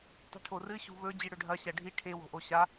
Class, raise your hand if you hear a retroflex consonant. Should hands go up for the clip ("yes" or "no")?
yes